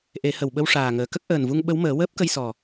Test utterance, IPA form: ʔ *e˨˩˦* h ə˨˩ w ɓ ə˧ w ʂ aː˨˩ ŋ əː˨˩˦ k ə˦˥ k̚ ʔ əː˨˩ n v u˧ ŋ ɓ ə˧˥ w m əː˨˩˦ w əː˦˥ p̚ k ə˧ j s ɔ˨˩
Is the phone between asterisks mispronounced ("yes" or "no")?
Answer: no